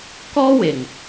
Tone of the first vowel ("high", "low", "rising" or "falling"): high